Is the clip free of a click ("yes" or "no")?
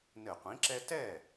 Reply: no